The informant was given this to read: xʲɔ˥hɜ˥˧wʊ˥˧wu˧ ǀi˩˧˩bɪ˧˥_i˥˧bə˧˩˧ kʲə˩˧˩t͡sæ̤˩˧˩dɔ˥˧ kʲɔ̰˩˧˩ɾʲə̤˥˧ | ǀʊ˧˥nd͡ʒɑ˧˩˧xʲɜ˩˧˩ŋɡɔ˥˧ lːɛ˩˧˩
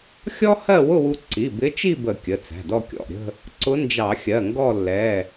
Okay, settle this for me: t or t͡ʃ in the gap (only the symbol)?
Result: t͡ʃ